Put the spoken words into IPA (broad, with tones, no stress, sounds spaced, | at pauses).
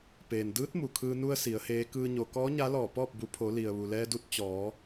p eː˩ n d ɯː˧˥ t̚ m u˩ kʰ ɯː˧ n u˧ ə̯ s i˩˧ ə̯ h eː˧˥ k ɯː˧ ɲ o˩ k ɔː˧˥ ɲ a˧˥ l ɔː˧˩ p ɔː˥˨ p̚ b u˩˧ pʰ o˩˧ l i˩ ə̯ ʋ u˩ l ɛː˧ d u˧ t̚ t͡ɕ ɔː˩˧